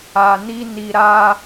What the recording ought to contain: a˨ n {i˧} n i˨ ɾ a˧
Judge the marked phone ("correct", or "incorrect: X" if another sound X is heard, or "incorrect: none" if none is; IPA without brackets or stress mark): correct